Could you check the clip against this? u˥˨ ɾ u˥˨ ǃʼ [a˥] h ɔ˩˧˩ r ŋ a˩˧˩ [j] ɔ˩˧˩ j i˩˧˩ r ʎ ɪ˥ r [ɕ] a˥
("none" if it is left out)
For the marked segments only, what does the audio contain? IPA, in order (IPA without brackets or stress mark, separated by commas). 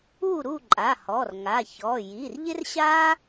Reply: a˩˧˩, ç, ɕ